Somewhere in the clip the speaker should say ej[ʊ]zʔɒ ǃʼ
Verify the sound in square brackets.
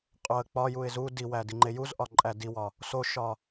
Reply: incorrect: u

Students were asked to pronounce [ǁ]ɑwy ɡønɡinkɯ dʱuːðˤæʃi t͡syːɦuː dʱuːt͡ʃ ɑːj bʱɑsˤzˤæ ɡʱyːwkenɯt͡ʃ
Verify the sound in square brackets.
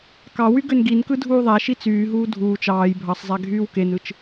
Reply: incorrect: k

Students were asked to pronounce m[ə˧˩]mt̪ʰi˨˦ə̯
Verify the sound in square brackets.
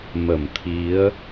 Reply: correct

